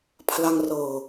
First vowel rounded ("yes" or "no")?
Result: no